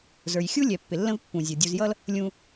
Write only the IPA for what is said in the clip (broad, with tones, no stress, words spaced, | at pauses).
zə˞˨j xʲu˦lʲɛ˨ pːɪ˨lːə̃˦vpːũ˨zʲʌ˨ dʲu˨zjʌ˦l | lʲũ˨